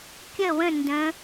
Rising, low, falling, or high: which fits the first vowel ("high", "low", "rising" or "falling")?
falling